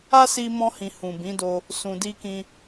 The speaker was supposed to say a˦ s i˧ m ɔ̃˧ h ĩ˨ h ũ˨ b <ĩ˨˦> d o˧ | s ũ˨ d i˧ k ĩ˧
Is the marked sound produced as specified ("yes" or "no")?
yes